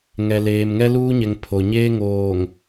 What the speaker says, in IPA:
ŋ ɛ˨ l eː˨ m ŋ ɛ˦ l uː˦ ɲ ɛ˨ ŋ pʰ o˨ ɲ eː˦ ŋ oː˨ ŋ

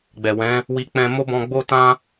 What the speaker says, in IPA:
ɡ͡b ɛ˨ w ɛ̃˨˦ | w i˧ k͡p ɛ̃˧ m o˦ b ɔ̃˧ ɡ͡b o˦ t ã˦

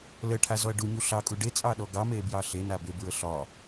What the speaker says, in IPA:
l ə ʈʰ a z ɔ ɐ̯ ɖ u ɲ u ɬ ɑ kʼ u ɖ e t͡sʼ ɑ ɗ ɔ ɡ ɑ m e b j ɑ ɬ e n a b e b ɹ ə ɬ ɒ

